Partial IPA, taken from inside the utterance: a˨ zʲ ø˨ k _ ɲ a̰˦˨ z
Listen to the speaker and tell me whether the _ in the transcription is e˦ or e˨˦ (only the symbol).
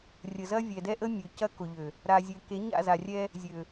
e˨˦